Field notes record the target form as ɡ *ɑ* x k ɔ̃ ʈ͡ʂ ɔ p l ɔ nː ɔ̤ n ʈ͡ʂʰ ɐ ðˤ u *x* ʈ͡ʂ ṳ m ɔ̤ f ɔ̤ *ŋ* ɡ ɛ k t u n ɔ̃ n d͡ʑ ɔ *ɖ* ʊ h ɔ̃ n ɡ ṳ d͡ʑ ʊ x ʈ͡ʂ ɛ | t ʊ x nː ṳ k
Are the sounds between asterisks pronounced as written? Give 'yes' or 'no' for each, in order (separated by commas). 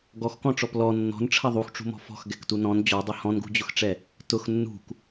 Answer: no, yes, no, no